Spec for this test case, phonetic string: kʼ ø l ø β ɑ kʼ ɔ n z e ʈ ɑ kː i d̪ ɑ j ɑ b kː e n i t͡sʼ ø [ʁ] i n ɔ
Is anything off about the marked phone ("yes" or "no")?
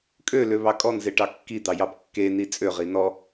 no